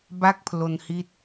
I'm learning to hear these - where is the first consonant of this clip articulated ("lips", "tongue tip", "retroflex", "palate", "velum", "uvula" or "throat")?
lips